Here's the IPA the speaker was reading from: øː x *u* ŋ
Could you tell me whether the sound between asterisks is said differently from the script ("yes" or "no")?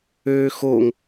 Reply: yes